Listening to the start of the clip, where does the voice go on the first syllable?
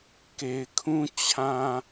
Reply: low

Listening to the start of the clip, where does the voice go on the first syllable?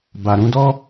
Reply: low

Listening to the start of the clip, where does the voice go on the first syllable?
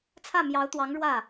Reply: falling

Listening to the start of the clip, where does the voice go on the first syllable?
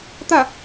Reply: falling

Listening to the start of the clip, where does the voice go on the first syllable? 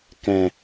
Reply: low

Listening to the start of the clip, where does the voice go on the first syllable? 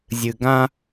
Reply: low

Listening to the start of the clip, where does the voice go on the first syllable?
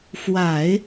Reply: low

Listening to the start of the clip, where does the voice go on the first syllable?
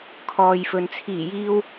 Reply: low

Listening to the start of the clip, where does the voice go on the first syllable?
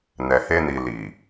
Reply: low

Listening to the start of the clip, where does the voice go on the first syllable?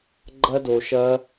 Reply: high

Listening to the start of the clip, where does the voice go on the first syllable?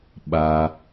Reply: low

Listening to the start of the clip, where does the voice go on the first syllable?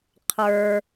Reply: low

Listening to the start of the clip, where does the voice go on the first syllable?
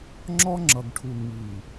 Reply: high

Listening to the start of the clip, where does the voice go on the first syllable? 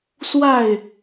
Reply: falling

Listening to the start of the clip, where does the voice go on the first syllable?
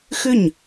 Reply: falling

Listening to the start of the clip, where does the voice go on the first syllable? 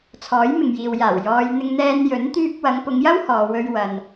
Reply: rising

